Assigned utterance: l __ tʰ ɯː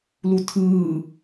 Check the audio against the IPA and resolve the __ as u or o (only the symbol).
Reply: u